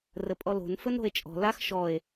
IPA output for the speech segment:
r ə pʼ ɔ l o̤ n f ɵ n ɾ o̤ e̯ t͡ʃʼ ɔ̤ l a x ʃ ɔ e̯

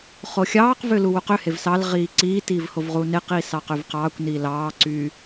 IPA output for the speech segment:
χ o xʲ ɑː q v ø l u w u q ø h e v s ɑ l ʁ iː ǀ iː t iː v h o v ʁ uː n e q iː s ɑ q ø v q ɑː kʷ n iː l ɑː ǀ yː

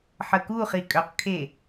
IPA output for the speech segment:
ħ ə k u χ i kʼ œ q kʰ e

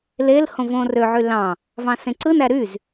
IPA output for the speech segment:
l e l h õ v õː r ø ʕ y l ɑ̃ | v ɑ̃ s ẽ ǀ ɯ n æ ɾ y z

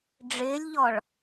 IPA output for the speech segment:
ɖ͡ʐ ɪː lʲ ʎ ɔ ɭ

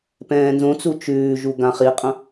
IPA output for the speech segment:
p ɛ̃ː n z õ t͡s u t͡ʃ ʉː ʒ u ɡ ã χ i qʼ ɐ̃

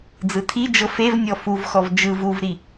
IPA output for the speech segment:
d͡z ɯ tʰ i d͡ʒ ɤ f e v nʲ ɔ f u v x ɔ v d͡ʒ ɯ v u v ɾ i

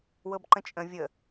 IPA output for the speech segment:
w ɤ b ǃ ə̃ t͡ʃʼ ə̃ vʲ ə

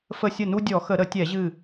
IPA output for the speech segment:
f ə˧˩ sʲ ə˧˩ n u˧ dʲ ɔ˧˩˧ x ə˧˩˧ ɾ ə˧˩˧ tʲ ɛ˧˩˧ ʑ ɨ˧˩

